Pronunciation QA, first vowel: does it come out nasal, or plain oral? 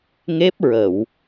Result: oral